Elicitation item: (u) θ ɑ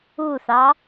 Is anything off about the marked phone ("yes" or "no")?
no